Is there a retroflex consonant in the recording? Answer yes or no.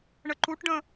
yes